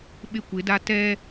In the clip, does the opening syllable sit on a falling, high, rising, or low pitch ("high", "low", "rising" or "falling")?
high